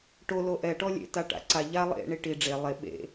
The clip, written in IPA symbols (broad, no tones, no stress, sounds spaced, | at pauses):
ʈ o l o ʔ ɛ ʈ ɔ lʲ ḛ t a ʈ a̰ ǀ a ʎ a lˠ ḛ ɳ i ʈ i ɖ͡ʐ e lˠ e ɓ ḛ